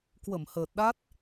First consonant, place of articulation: velar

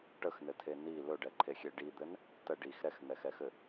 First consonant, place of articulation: retroflex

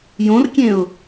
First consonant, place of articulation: palatal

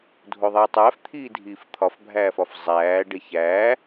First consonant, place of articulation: alveolar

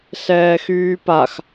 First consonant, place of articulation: alveolar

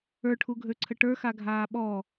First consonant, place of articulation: retroflex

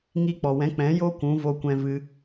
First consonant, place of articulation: velar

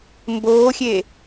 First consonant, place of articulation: labial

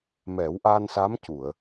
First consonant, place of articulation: labial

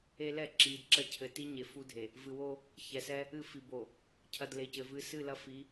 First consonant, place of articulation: alveolar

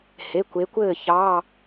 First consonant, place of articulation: glottal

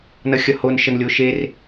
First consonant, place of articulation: alveolar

